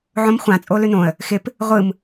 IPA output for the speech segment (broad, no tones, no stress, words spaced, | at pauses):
ʕõm χʷã t͡sʼolʉnõə̯ | xɪp | ʁʷɯm